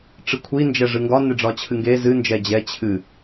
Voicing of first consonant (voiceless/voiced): voiceless